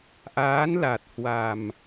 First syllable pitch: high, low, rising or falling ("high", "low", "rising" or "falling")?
rising